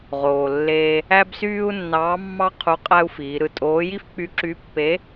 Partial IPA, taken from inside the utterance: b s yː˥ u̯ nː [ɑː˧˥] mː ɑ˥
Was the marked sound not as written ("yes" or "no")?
no